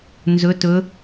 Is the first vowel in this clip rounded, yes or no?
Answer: yes